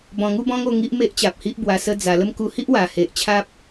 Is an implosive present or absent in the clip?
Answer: absent